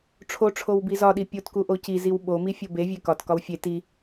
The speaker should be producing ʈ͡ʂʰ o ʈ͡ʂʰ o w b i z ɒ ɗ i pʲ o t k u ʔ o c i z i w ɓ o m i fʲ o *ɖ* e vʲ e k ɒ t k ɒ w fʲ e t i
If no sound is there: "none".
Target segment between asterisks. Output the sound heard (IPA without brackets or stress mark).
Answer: b